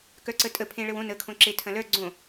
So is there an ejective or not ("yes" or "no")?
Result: yes